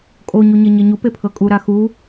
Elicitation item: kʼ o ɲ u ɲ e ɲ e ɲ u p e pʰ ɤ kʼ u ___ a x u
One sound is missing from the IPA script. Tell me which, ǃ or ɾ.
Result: ɾ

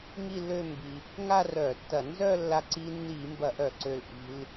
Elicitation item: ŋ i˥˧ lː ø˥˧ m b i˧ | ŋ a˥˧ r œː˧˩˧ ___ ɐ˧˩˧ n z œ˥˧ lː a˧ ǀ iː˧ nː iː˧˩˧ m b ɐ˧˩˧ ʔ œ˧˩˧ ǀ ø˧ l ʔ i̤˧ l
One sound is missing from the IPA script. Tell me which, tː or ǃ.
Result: tː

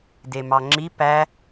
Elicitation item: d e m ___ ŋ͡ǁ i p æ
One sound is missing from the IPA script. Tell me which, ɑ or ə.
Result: ɑ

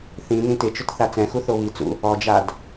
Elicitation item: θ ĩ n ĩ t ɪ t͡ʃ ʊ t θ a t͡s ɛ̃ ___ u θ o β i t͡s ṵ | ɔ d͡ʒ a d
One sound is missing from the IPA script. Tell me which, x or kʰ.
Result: x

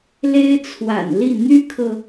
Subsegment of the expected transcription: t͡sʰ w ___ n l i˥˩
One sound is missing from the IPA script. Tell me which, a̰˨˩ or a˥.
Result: a̰˨˩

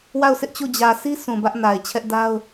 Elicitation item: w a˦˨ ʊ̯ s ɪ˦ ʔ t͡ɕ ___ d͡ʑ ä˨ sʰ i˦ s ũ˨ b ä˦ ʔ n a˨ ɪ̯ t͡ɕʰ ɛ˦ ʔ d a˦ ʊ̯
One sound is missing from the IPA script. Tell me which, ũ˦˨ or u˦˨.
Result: u˦˨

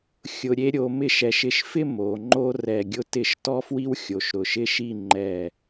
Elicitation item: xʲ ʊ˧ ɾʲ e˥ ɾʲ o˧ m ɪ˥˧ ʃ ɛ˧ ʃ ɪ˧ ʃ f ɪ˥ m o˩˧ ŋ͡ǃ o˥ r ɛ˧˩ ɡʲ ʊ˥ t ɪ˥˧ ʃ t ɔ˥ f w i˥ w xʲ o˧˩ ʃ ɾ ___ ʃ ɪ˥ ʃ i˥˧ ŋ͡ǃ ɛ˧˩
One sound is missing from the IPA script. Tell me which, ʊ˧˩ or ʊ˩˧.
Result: ʊ˧˩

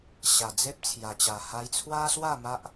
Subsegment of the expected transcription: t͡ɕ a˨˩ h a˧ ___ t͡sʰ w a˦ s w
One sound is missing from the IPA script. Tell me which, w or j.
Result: j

